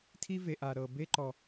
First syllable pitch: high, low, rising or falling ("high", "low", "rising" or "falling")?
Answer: high